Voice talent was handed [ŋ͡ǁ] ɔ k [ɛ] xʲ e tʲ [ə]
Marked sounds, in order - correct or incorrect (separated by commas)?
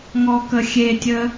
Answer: incorrect, incorrect, correct